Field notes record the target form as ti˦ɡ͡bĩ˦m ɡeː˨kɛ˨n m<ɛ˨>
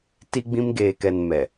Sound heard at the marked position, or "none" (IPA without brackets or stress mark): ɛ˨